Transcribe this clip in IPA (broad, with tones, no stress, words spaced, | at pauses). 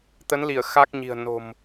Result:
t̪ə˨˦nli˧˩ə̯ xa˦˥k̚ɲi̤˨˩ə̯ no̤˨˩m